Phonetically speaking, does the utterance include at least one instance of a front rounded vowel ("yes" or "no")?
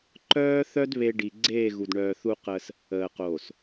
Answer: yes